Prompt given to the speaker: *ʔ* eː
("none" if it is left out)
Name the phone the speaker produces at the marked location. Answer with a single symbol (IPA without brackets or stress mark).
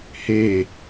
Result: h